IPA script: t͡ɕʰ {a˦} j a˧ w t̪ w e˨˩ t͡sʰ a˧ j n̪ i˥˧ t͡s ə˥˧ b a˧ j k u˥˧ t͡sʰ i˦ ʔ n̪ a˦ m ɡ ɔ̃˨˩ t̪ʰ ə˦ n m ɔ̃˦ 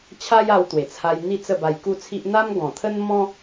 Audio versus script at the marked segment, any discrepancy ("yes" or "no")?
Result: no